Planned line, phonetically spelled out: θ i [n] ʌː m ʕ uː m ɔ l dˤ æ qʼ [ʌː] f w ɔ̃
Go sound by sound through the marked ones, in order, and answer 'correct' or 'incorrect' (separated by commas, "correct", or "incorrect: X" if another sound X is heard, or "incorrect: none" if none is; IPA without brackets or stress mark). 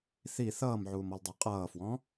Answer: incorrect: θ, correct